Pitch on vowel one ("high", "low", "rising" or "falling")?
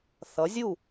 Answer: rising